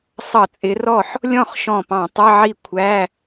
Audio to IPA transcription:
sˤ ʌ˧˩˧ t͡sʼ ɪ˨˦ r ɔ˥˩ ħ | lʲ ɔ̃˥˩ χ ʃ ɔ̃˧˩ p ɑ̃˧˩˧ tˤ ə˧˥˧ ʕ i˥˩ kʷʰ æ˧˥˧

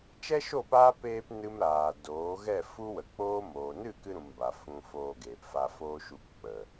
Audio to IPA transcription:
t͡ʃ ɛ˦ ʃ o˦˨ p aː˦ p eː˧ p n ɨ˦ m ɾ aː˨ d oː˨˦ ɣ ɛ˦˨ f u˦ w ə˨ k͡p oː˦ m oː˨ n ɨ˦˨ k ɨ˧ ɾ ũ˨ m b a˨ f ũ˧ f oː˧ ɡ eː˨ p f a˧ f oː˦ ʃ u˧ k k͡p ə˨

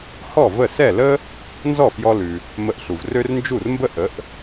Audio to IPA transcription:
h ɔ˥˩ v ə˥˩ s ɛ˥˩ l ə˥ | n z ɔ˥˩ f j ɔ˧ l ʉ˩ | m ə˧ ʔ ɬ u˩ v r ø˥ r n d͡ʒ u˥˩ r m b ə˥ ʔ ə˩˥ ʔ

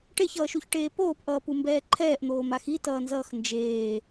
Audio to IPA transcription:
ʈ e ç ʌː ʃ u ç ʈ eː p oː p ʔ ʌː p u m b ɛː ǃʰ ɛː ʔ n̪ oː m a x i t ʌː n z ʌː x n d͡ʒ eː

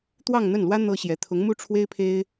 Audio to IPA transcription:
t̪ w ɑ˥˧ ŋ n̪ ə˥˩ n l w ä˥ n̪ ɤ˥ ɕ j ɛ˧˥ t̪ʰ ʊ˧˥ ŋ m u˥ ʈ͡ʂʰ w e˥ ɪ̯ pʰ e˥ ɪ̯

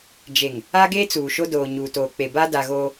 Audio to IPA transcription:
d͡ʒ e˨ ŋ | a˦ ɡ eː˦ t͡s uː˨ ʃ o˦ d oː˨ ɲ uː˨ t oː˨ k͡p e˨ b a˦ d a˨ ɣ oː˦

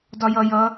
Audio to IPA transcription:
d ɒ j ʌ j ʌ

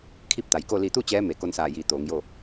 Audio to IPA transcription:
kʰ i˥˨ p̚ t̪ a˩˧ j k o˥˨ l i˧˩ t̪ u˥˨ t͡ɕ ɛː˧˥ m e˩˧ k o˧ n s aː˧˩ j iː˩˧ t̪ oː˩˧ ŋ j oː˥˨

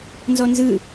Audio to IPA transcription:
n z ɔ n z ɯ

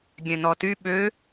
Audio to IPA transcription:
ɡʲ ɛ̃ n̪ ɔ t y ɓ ø

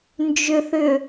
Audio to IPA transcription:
n d͡ʒ ʏ θ ʏ

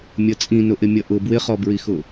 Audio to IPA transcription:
mʲ ʌ t͡sʼ ĩ n ʊ ʔ ɪ mʲ ʌ ʔ ʊ b w ɪ χ ɔ b ɹ i x ʊ

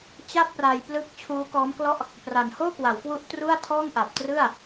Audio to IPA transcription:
t͡ɕ a˥˩ p̚ r a˧ j p l ɯ˦˥ k̚ t͡ɕʰ uː˦˥ k ɔː˦˥ m k l ɔ˥˩ ʔ | p r a˨˩ n h oː˥˩ k w a˩˦ w k w u˦˥ ʔ t r u˥˩ a̯ tʰ ɔː˥˩ ŋ ʔ a˨˩ p̚ t r ɯ˥˩ a̯

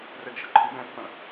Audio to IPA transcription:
r ɛ ɡ ʃ ə ǃʰ ɨ b ɛ̃ː pː ə̃

